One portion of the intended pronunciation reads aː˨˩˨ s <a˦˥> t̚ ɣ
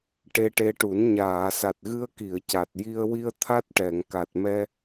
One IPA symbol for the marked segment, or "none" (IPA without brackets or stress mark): a˨˩